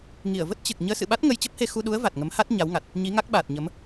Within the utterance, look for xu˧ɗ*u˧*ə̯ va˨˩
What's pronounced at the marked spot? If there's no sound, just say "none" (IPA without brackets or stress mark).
u˨˦